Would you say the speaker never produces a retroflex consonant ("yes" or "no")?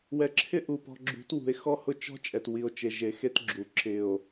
yes